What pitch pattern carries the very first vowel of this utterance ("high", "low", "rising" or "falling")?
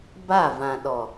falling